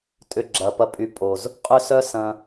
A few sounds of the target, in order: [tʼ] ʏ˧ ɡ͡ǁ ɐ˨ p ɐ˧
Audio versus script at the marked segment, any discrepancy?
no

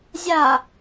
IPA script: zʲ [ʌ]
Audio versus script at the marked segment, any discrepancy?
yes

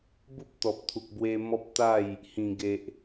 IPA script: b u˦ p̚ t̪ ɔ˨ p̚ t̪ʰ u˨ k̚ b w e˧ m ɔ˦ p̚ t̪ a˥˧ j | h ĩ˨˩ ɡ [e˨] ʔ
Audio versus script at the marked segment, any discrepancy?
no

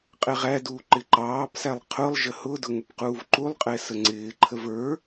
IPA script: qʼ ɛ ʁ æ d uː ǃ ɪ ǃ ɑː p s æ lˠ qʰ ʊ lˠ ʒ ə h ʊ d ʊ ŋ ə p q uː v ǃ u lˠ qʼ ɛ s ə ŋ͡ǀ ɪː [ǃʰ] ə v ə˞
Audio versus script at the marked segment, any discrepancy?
no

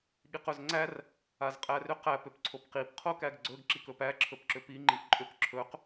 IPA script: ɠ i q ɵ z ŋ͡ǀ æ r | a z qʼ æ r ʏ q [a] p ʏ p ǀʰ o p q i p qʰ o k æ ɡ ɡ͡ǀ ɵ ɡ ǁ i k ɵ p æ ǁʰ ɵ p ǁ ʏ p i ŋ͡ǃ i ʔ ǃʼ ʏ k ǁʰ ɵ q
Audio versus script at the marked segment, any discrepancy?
yes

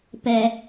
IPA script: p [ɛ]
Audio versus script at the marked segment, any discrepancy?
no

